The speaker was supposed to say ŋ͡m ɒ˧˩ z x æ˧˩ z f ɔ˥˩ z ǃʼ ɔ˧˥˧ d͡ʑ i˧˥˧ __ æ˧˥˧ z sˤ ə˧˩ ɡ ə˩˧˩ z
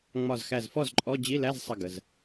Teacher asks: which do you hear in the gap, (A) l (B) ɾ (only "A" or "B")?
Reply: A